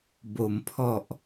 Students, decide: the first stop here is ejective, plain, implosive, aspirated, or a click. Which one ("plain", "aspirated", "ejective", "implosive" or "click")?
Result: plain